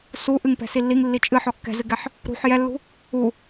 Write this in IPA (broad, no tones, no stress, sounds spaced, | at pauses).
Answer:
s u ʔ ɨ ŋ p ɛ̤ s i lː i ŋ lː i t͡ʃʼ ɨ ħ ɔ kː ɛ̤ z ɨ ɡ ɛ ħ | ɾ ṳ ħ j ɛ lː ṳ | u